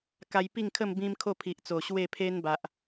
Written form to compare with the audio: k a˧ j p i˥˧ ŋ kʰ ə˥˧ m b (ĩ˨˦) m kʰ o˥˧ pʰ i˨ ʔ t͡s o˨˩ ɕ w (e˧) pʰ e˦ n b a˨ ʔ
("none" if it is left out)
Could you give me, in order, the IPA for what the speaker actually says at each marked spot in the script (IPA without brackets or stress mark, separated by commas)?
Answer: ĩ˦, e˥˧